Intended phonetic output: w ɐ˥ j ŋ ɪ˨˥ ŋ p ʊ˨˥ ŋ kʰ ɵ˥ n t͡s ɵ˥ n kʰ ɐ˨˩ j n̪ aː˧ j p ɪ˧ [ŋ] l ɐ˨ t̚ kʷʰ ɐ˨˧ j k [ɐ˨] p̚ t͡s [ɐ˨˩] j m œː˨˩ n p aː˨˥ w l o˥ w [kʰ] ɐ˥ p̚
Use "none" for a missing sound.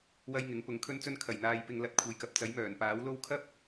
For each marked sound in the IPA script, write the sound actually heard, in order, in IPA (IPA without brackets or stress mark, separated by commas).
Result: ŋ, ɐ˨, ɐ˨˥, kʰ